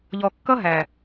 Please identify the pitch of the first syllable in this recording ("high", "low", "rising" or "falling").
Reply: low